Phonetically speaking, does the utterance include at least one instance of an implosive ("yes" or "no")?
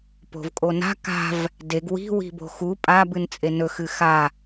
no